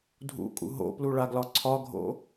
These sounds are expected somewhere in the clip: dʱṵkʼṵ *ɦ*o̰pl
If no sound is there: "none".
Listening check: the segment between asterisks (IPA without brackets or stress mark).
ɦ